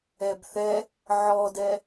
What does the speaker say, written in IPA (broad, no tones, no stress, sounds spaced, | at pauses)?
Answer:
ɛ b θ ɛ | ʕ ɔ d ɛ